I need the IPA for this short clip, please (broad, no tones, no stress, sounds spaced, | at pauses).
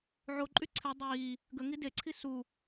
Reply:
ʕ o ǃʼ y ǀʰ ɪ dˤ iː | ɡ ə ŋ i d e ǀʰ i s u